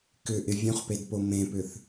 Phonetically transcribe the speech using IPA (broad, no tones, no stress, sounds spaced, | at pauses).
k ʏ ʔ ɪ vʲ ũ χ p e d p o m ẽ p ʏ θ